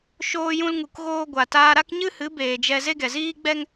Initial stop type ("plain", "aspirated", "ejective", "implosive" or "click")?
plain